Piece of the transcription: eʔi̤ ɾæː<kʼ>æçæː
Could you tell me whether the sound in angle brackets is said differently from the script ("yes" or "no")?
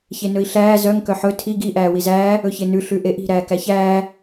yes